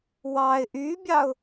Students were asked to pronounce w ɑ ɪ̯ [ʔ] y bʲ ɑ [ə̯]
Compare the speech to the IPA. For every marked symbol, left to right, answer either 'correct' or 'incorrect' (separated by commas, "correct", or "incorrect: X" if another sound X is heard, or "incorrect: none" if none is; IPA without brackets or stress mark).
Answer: correct, incorrect: ʊ̯